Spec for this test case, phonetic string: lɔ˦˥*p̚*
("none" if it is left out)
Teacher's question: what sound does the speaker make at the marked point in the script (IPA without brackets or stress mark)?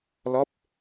p̚